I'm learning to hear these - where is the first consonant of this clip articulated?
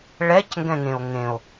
retroflex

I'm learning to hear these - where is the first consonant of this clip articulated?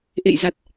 throat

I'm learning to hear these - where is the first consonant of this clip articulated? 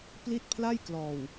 lips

